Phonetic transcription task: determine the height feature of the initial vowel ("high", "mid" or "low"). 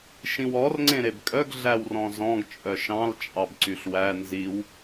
high